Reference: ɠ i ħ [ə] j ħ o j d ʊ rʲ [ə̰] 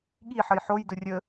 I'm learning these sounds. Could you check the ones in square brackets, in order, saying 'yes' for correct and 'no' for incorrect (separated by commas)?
yes, no